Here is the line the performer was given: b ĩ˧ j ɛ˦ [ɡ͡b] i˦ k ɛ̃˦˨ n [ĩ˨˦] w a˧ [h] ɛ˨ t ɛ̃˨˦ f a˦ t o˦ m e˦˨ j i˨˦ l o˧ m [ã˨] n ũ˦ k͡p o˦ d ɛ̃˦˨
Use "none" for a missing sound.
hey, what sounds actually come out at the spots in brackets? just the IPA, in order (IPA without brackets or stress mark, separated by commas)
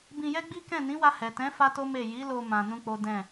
ɡ͡b, ĩ˨˦, h, ã˧